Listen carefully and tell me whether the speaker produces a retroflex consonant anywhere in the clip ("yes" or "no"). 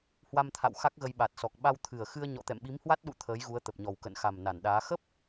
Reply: no